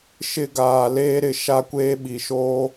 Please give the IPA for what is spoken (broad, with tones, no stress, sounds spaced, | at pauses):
ʃ ɪ˦˨ ɡ aː˨ l eː˦ ɾ ɪ˨ ʃ a˦ kʷ eː˦ ɓ i˨ ʃ oː˦